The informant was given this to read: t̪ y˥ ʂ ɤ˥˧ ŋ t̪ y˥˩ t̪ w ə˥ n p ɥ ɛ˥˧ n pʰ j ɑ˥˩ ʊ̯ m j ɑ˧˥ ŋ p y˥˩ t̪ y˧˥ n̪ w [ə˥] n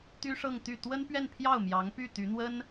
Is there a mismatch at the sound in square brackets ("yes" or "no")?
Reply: no